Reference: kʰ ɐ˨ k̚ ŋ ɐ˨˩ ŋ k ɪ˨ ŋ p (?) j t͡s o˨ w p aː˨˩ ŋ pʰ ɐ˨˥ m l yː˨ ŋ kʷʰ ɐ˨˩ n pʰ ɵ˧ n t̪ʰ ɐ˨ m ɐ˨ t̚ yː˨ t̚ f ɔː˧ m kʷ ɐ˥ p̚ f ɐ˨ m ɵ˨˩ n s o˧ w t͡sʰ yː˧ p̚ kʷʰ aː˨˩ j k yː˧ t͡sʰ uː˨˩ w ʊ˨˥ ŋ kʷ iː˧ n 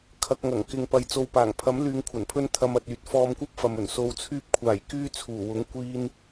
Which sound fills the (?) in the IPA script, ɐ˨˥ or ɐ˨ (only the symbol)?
ɐ˨